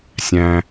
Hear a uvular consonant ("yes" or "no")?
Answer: no